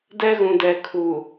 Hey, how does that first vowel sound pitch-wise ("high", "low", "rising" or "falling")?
high